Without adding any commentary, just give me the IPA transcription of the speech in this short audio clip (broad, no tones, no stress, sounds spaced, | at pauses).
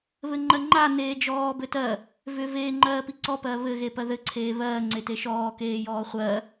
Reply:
β ɘ ŋ͡ǃ ɜ ŋ͡ǃ a n eː d͡ʒ ɔː b ɘ t ɜ | v ʏ v eː ŋ͡ǃ ɜː p i ǀ ɔ p ɜ β ɘ ɣ e p ɜ ð ɘ ǀʰ eː β ɜː ŋ͡ǀ e t e ʃ ɔː k eː j ɔː χʷ ɜ